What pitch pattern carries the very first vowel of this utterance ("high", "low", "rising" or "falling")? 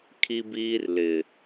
high